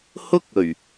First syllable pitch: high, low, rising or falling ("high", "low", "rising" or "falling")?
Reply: high